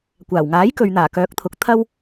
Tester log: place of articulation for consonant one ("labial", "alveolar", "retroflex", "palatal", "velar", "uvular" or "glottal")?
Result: velar